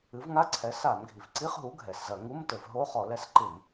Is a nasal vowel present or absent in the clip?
absent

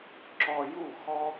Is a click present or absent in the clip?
present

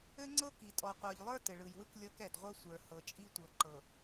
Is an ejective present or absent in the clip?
present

